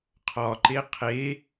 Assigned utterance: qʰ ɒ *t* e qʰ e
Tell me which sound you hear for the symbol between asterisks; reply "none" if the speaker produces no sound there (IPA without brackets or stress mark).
ǃ